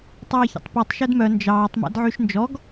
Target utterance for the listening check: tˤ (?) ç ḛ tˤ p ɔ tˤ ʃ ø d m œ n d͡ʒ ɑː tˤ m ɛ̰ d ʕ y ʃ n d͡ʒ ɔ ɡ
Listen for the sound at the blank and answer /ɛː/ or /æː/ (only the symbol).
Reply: ɛː